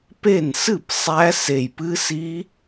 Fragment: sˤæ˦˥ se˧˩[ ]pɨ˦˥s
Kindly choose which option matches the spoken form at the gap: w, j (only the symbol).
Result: j